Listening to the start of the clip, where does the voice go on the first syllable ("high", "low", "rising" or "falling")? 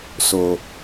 low